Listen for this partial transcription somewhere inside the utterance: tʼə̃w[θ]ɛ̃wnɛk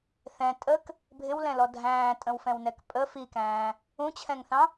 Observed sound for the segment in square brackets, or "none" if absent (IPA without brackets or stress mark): f